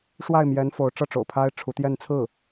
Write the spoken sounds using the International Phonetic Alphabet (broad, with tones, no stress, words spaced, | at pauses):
ʂwa˥˩ɪ̯mjɛ˧˥n fo˧˥ʊ̯ʈ͡ʂɤ˥˩ʈ͡ʂo̰˨˩ʊ̯pʰa˥ɪ̯ ʈ͡ʂʰu˧˥t̪jɛ˥˧nt͡sʰɹ̩˥˩